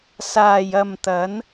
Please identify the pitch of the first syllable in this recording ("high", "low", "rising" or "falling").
low